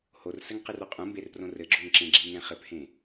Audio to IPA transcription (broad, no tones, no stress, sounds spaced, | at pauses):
h o r s ɘ ŋ q ɨ r o qʼ ũ m b e r p r õ r ɘ ɡ͡ǁ o ŋ ǁ ẽ ɡ͡ǁ i ŋ ɛ̃ χ ɘ p h ẽ